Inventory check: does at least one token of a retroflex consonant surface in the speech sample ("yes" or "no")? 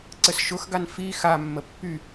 no